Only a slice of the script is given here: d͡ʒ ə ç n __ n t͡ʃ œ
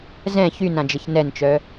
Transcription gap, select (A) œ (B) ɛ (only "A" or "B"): B